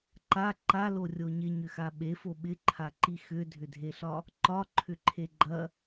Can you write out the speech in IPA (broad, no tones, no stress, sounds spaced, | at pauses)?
ǃ a ǃ a l o rʲ o ɲ ɪ ɲ ʏ x a ɓ e f o ɓ ɪ ǃʰ a ǃ i x ʏ dʱ ʏ dʱ e ɬ ɒ | ǃ ɒ ǃʰ ʏ ǃʰ e ɡ͡ǃ ɐ